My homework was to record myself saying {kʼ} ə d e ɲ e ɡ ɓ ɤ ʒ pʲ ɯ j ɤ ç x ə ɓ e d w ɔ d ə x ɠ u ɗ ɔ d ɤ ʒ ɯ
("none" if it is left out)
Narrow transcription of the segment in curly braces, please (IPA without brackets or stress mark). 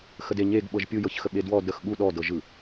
x